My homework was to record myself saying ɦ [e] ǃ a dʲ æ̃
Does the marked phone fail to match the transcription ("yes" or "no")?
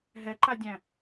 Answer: yes